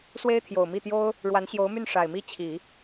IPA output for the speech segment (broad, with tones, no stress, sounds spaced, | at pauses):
s w e˥ ɪ̯ t̪ʰ j o˨˩ ʊ̯ m i˥˩ t̪ j o˥ ʊ̯ | ɻ w a˧˥ n ɕ j o˧˥ ʊ̯ m y˥˩ n ʂ a˨˩ ɪ̯ m i˥˩ t͡ɕʰ i˨˩˦